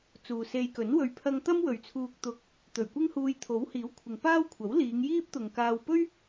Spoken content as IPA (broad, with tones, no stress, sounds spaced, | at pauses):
t͡s uː˨ s e˧ j k ɵ˨˥ n w ɵ˨ ɥ pʰ ɐ˧ ŋ t̪ ɐ˥ m w ɵ˨ ɥ t͡sʰ uː˧ k̚ t̪ ʊ˧ k̚ | t̪ ɵ˨˩ ɥ kʷ ɪ˥ ŋ h uː˧ j t̪ʰ o˨˥ w h iː˨˥ w kʷʰ ɪ˨ ŋ p aː˥ w kʷʰ ɐ˨˥ w l iː˨˧ ŋ j iː˥ p̚ t̪ ʊ˨ ŋ k aː˧ w p ɵ˥ ɥ